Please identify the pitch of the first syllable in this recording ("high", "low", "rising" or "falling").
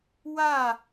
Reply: falling